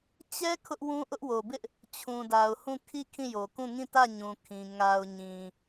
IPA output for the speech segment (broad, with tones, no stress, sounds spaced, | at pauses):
t͡ɕ ɛ˦ kʰ ʊ˦ ʔ w ũ˦ ʔ ʊ˦ ʔ w o˨ b ɪ˦ ʔ | t͡ɕʰ ũ˨ d a˨ ʊ̯ h ũ˦˨ kʰ i˦˨ kʰ ĩ˦˨ j o˨ k ũ˦˨ ŋ ĩ˦˨ t ä˦˨ ɲ ũ˨ kʰ ĩ˨ ŋ a˨ ʊ̯ ɲ ĩ˨